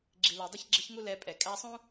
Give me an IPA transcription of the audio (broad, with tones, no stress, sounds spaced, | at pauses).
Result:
ɡ͡ǁ i˨ l ə˞˨ dˤ ɪ˦ ç ɡ͡ǁ ɪ˦ ç ŋ u˦ l ɛ˧ pʼ ɛ˨ kʼ æ˧ sˤ ũ˦